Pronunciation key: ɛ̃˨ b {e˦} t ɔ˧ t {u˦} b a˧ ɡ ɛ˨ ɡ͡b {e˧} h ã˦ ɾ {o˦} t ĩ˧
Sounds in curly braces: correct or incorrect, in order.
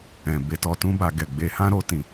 incorrect, incorrect, correct, correct

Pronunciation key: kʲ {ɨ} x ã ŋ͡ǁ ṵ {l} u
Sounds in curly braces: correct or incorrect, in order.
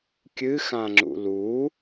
correct, correct

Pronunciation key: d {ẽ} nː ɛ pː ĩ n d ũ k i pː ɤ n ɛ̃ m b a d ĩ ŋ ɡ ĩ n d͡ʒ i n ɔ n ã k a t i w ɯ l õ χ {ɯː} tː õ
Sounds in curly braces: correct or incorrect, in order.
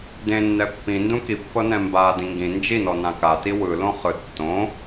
correct, incorrect

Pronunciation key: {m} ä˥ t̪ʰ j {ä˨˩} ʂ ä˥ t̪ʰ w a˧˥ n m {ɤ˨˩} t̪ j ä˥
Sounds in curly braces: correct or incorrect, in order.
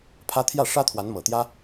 incorrect, incorrect, correct

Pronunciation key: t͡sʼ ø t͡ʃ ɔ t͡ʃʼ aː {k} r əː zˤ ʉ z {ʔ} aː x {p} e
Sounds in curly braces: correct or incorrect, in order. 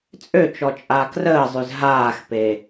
correct, incorrect, correct

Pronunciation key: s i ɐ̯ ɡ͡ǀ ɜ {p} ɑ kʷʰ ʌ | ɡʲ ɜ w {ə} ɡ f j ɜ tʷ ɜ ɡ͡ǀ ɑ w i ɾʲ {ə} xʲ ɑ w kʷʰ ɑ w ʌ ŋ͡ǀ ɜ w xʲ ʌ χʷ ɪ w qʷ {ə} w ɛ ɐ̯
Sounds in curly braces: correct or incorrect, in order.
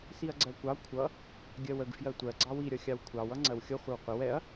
incorrect, correct, incorrect, correct

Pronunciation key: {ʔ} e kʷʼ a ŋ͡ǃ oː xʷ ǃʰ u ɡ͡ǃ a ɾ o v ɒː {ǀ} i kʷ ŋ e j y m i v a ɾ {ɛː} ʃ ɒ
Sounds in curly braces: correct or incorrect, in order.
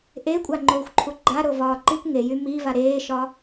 correct, incorrect, incorrect

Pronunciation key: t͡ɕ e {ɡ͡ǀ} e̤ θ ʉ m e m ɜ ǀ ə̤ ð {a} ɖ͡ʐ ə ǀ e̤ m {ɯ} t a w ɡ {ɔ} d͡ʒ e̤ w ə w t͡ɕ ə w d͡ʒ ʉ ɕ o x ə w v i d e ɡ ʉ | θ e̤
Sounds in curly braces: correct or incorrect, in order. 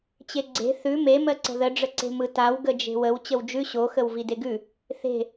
correct, incorrect, correct, incorrect

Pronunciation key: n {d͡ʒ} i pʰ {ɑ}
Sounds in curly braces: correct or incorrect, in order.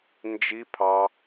correct, correct

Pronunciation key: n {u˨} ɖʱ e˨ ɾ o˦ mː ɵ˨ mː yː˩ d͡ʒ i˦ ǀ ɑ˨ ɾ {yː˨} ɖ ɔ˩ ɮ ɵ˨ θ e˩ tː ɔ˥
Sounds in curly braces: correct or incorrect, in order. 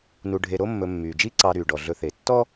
correct, incorrect

